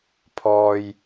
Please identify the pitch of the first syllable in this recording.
low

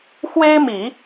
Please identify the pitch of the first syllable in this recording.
high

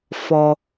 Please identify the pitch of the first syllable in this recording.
low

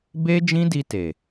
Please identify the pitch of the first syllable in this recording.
high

